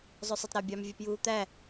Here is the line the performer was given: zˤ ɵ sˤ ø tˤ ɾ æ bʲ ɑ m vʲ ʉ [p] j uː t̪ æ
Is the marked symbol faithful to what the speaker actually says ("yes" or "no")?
yes